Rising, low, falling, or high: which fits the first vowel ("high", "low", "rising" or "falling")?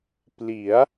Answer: rising